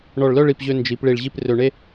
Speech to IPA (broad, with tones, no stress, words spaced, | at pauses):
ɳɔ˧˩ɭlœ˥˧ɭi˧˩pʑø˧ nd͡ʒi˩˧p ɭi˧˩ɭʑi˥˧p rø˧ɳe˥